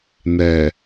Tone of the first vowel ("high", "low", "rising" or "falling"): low